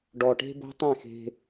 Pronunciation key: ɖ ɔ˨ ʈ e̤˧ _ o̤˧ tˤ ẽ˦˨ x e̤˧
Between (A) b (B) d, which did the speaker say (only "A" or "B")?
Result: A